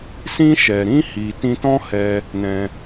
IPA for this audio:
s ĩ˧ ʃ ɛ˨ ɾ ĩ˧ h i˨ t ĩ˧ t ɔ̃˦ h ɛ˧ | n ɛ̃˧

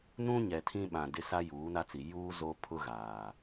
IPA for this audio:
n ũ˦ ɲ ɛ˨ tʰ ĩ˦ ɓ ã˨ d ɪ˦ s a˦ j uː˨˦ n a˦ t͡s i˨ j uː˦ z o˦ pʰ ʊ˦ ɣ aː˨

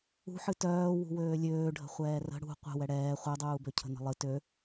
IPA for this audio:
ṳ ħ ɨ t œː w ṳ w øː lʲ øː ɖʱ ə̤ χʷ ɛː r ə̤ ɽ ṳ qʷ ə̤ w ɛ ɽ ɛː χʷ œ dˤ uː b ø cʰ ə̤ n ə̤ lˠ ɨ t ø

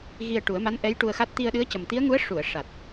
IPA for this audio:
ɣ i˧ ə̯ ʈ u˨˩˦ ə̯ m a˧˥ n ʔ ɛ˧˥ j ʈ u˧ ə̯ x a˦˥ t̚ t̪ i˧ ə̯ ɗ ɨ˧˥ ə̯ c ə˨˩ m t̪ i˧˥ ə̯ ŋ u˧˥ ə̯ ʂ u˨˩˨ ə̯ ʂ a˨˩ t̚

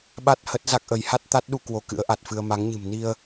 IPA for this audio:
ɓ a˦˥ t̚ h ə˦˥ t̚ z a˦˥ k̚ ʔ ə˨˦ j h a˦˥ t̚ t̪ a˦˥ t̚ ɗ u˧ k w o˧ k ɨ̰˧˥ ə̯ ʔ a˨˩ t̚ f ɨ˧ ə̯ m a˨˦ ŋ ɲ ɨ̤˨˩ m n i˧ ə̯

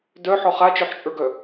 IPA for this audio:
d œ ħ ɔ χ a t͡ʃ œ ħ t͡ʃʼ ə˞ ɡ œ

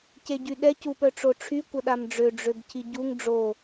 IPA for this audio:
c e ɟ y ɗ ɛ c u p œ ʈ͡ʂ o ʈ͡ʂʰ y kʷ ə ɗ a m ɖ͡ʐ ø ɖ͡ʐ ø b cʰ i ɟ u ŋ ɖ͡ʐ o

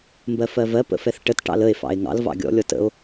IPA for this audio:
m b ɜ f ɜ v ɜ p ə̰ f ɛ θ ʈ ə t ʈ ɑ̰ l ə e̯ f ɑ̰ e̯ ŋ ɑ̰ l v ɑ̰ ɡʲ ɔ̰ lʲ ɔ t ə̰ o̯

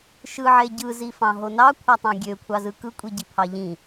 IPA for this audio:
ʃ ɯ ʕ e ɟ ɯ z i f ɑ̃ ɦ o n ɑ kʷʰ ɑ tˤ ɑ̃ ɡʲ ø kʷʰ ɑ z ɯ k ɯ kʷʼ i ɟ i pʰ ɑ ʎ ĩ

